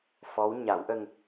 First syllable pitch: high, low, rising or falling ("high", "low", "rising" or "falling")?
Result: rising